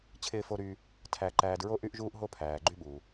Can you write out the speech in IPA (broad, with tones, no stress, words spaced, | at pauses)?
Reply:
t͡ɕʰɪː˨fo˨ɾyː˨ | tʰæ˨ ǃæː˨dɹo˦ ʔy˦ʔʒuː˦ʔɦo˦ pʰæː˩ɡ͡ǃy˦ɓuː˩